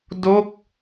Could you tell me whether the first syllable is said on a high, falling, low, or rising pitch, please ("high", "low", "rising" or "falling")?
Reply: falling